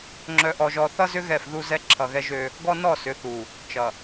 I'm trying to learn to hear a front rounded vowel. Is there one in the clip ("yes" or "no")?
yes